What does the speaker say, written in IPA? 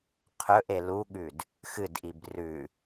qʰ ɵ ʔ e l u ɠ ʉ d | x ɨ d ʔ i b r ʉ

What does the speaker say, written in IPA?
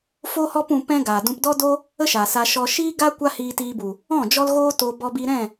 f o˦ h ɔ˦ p ũ˧ p ɛ̃˦ ɡ aː˨ d ũ˧ p d ɔ˦ d o˦ | ə˦ ʃ aː˨ s a˧ ʃ ɔ˧ ʃ iː˦ ɡ a˦ kʷ a˦ h iː˧ t iː˧ b u˨ | ɔ̃˦˨ d͡ʒ ɔ˦ l ɣ oː˦ t o˧ b ɔ˧ b i˧ ɾ ɛ̃˦˨

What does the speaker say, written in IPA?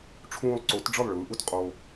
ʈ͡ʂʰ ũː˧ lˠ ǀ o˨˦ t ɖ͡ʐ ɯ˦˨ lˠ ɭ ɯː˨˦ ʔ u˧ t qʼ o˧

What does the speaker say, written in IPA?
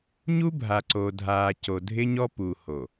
ɲ u˦ bʱ a˨ ǀ o˨ dʱ aː˨ c o˨ dʱ ɪ˦ ɲ ɔ˦ p u˨ h o˨

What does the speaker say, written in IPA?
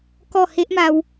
k ɔ˥˧ h e˦ ʔ m a˧ w

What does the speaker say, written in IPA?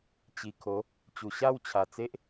t͡ɕ i˨˩ kʰ o˨˦ | t͡ɕ u˨˩ ɕ a˥˧ w t͡ɕʰ a˨˩ t͡s e˦ ʔ

